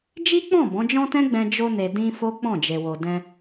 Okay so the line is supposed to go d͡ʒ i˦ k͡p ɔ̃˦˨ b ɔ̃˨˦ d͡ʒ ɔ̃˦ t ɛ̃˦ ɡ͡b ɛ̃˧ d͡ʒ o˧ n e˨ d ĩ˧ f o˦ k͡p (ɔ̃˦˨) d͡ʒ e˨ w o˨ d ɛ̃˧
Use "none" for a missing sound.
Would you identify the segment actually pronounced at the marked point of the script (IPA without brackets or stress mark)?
ɔ̃˦˨